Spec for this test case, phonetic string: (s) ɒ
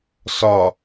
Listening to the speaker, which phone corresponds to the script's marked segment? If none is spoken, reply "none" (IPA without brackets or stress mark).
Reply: s